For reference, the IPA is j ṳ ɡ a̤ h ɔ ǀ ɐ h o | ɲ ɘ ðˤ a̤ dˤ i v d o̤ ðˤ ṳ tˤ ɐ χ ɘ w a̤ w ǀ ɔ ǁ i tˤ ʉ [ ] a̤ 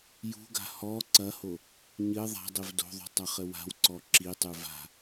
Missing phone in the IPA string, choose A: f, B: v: B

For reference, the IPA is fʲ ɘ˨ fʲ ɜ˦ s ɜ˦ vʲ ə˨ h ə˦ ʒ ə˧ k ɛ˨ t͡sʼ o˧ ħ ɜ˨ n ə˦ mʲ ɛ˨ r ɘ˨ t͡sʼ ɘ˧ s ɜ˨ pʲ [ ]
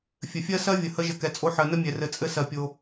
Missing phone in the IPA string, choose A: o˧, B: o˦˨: A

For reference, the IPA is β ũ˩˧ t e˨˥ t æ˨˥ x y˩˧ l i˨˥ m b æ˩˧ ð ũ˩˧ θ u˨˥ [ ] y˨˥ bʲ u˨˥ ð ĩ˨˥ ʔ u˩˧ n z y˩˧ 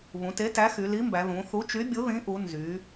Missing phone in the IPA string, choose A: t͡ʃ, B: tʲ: A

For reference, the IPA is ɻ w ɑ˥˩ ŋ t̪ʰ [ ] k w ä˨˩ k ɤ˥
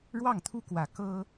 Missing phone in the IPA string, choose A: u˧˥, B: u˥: B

